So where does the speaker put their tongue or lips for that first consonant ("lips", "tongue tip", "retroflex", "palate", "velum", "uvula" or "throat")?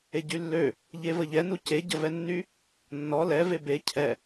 palate